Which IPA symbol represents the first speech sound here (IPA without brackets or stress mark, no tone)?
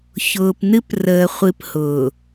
ç